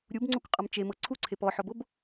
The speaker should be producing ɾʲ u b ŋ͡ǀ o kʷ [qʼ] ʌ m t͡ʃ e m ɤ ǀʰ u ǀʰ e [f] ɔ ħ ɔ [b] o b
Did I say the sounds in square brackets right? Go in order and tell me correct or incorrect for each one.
correct, incorrect, correct

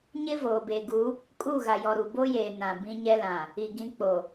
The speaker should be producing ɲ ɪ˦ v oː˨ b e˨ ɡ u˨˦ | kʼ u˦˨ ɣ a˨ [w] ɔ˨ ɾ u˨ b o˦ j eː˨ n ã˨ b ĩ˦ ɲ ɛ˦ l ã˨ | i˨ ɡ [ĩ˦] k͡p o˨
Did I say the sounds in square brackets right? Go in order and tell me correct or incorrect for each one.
incorrect, incorrect

